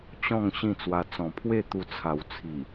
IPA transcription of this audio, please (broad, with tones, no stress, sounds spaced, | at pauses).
t͡ɕ ɔ̃˥˧ ŋ ɕ ĩ˥˧ t͡s w a˧ t͡s ɔ̃˨˩ pʰ w e˥˧ t̪ u˧ t͡sʰ a˨˩ w t͡sʰ i˨˩